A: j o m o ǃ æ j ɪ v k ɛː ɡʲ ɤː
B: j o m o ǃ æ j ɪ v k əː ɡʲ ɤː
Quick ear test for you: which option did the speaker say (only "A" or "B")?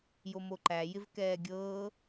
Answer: A